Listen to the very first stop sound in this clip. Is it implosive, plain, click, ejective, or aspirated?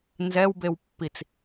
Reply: plain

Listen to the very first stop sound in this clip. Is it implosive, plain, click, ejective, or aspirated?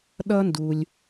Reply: implosive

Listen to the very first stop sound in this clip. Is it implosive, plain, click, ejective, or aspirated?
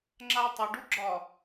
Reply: click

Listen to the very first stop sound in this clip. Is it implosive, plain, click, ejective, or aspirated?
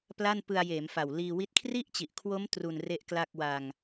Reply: plain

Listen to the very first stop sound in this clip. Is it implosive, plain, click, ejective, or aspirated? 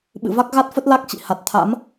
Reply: implosive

